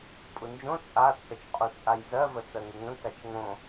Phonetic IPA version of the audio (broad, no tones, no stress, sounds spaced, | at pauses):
pʼ u n d͡ʒ õ t͡sʼ a t͡sʼ ə t͡ʃ qʼ u t͡sʼ a j z ɜ v ə t͡s ɜ ŋ ɪ ŋ ə̃ k a t͡ʃ ŋ õ